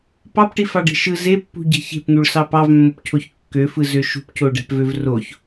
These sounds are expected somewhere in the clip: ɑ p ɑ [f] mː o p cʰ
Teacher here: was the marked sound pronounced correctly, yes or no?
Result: no